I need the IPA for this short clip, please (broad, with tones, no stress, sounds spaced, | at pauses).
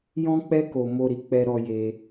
j ɔ̃˦ k͡p ɛ˦ k o˧ m o˧ ɾ i˨ k͡p ɛ˧ ɾ ɔ˧ j e˧